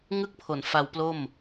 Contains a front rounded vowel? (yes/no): no